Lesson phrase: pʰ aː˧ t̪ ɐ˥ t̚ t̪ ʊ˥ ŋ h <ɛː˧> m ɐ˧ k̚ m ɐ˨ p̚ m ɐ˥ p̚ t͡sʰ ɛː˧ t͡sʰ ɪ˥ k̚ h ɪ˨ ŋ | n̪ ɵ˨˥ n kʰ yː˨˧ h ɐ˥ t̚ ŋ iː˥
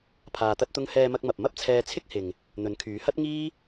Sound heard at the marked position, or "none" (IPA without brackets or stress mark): ɛː˧